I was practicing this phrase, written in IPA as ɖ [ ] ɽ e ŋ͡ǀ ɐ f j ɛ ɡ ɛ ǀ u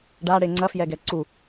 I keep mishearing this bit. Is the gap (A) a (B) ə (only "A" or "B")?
A